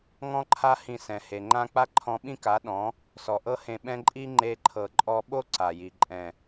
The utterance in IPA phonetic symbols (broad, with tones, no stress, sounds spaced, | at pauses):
ŋ ɔ̃˦ ǃʰ a˦ h ĩ˧ s ɛ̃˨ h e˨ ŋ͡ǃ ã˦ k͡p a˦ ǃʰ ɔ̃˧ ɓ ĩ˦ k a˨˦ ɗ ɔ̃˨˦ | s ɔ˨ ʔ ɤ˦ h ẽ˧ ɓ ɛ̃˦ ǃʼ i˦ ŋ͡ǃ e˦ ǃʰ ɤ˧ ǃʼ ɔ˧ ɓ o˦ ǀ a˨ j i˨ ǃʼ ɛ̃˨